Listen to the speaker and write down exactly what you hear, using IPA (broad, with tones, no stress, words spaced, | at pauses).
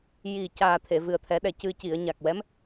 ji˨˩caː˨˩ t̪ʰe˨˩˨vɨ˨˩ə̯t̪ʰɛ˨˩˦ɗɛ˨˩ cɨ˨˩ci˨˩˨ə̯ ɲa˨˩k̚wɛ˧˥m